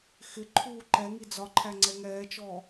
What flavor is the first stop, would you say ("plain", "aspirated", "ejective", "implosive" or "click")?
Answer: click